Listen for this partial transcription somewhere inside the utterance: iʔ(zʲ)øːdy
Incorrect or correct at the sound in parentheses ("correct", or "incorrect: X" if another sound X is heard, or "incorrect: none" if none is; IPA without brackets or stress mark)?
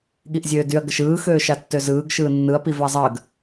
correct